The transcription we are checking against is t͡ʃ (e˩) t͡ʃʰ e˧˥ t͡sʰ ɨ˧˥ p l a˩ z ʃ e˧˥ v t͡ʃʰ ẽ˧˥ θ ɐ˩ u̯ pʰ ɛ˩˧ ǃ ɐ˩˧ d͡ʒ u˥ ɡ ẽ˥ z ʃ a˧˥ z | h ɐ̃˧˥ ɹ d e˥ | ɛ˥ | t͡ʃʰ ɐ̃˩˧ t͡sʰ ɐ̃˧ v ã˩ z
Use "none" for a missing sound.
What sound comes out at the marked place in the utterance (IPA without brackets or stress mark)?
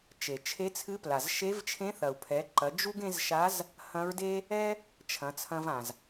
e˩